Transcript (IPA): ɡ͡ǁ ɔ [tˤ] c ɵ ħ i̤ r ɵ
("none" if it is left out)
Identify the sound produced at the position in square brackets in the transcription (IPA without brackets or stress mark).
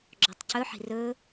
tˤ